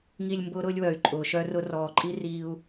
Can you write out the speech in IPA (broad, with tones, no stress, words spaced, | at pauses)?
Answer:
ŋi˨lʲ mbʊː˦ɾʊː˦lʲwœ˨y̯ ǃʼʊː˨ʃœ˦rʊ˦ rɔː˨ǃʼi˦ riː˦u̯